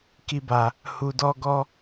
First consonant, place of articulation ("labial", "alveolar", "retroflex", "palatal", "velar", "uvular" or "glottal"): velar